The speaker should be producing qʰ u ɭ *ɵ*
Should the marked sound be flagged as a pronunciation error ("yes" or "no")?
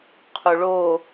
yes